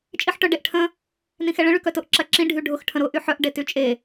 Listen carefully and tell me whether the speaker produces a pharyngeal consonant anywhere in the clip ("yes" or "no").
yes